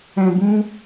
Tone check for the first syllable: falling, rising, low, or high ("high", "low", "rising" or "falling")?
low